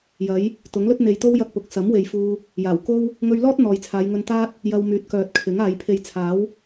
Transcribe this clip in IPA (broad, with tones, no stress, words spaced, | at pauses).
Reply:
jɐ˨˥j | t̪ʊ˨˥ŋlɵ˥t̚ n̪e˨jt̪o˥w jɐ˥k̚pʊ˨˥k̚ sɐ˨˥mwe˨j fuː˧ | jaː˨˩wko˥w | ŋɵ˧ɥlɔː˥t̚ n̪ɔː˨jt͡sʰaː˨˧j ŋɵ˧nt̪aː˥t̚ | jɐ˧wmyː˨˥t̚ kœː˨t̚kʰɪ˨˥ŋaː˨˧j pʰe˨jt͡sʰaː˨˥w